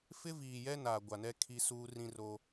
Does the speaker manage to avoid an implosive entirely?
yes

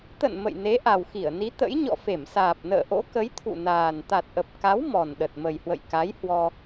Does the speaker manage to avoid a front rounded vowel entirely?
yes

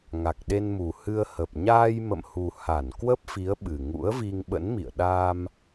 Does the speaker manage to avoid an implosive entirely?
no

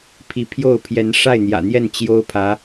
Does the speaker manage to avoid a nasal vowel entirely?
yes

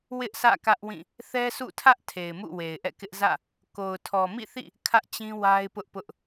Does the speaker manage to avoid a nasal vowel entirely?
no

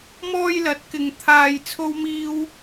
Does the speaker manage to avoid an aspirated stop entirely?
no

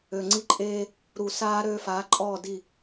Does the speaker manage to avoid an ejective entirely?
no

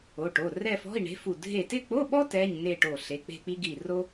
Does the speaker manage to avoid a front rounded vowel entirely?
yes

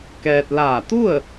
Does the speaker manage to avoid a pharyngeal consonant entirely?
yes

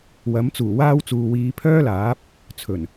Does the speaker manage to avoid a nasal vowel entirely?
yes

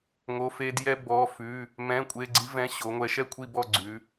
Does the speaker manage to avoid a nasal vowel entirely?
no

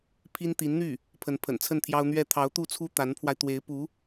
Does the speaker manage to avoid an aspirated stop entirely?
no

